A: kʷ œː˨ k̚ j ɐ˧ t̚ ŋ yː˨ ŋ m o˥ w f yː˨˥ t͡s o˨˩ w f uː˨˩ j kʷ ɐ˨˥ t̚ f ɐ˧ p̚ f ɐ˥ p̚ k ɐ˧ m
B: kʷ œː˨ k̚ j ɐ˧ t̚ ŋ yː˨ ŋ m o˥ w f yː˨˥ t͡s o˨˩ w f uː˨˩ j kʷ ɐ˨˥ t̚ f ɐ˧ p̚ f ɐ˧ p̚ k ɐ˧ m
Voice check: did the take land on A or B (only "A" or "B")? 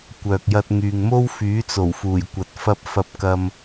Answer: B